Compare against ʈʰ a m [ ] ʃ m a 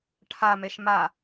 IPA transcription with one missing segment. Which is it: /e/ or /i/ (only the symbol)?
e